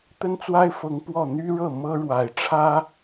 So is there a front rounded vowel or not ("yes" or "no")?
yes